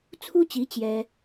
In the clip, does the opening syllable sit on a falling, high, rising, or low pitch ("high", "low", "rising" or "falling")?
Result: high